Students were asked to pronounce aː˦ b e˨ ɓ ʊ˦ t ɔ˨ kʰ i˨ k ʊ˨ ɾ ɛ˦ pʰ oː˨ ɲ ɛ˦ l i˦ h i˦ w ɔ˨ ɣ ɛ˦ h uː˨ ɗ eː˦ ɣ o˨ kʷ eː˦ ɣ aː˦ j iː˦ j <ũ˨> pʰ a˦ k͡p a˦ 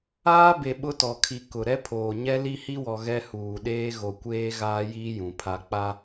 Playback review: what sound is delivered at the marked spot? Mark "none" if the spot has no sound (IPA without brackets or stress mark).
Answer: ũ˨